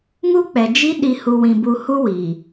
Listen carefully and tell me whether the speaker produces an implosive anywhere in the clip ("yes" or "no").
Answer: yes